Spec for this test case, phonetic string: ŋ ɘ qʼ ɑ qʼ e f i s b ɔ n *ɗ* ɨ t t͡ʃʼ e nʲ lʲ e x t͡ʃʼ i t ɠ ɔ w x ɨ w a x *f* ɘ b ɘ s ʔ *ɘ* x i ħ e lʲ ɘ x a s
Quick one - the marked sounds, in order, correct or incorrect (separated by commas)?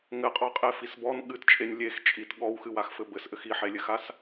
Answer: incorrect, correct, correct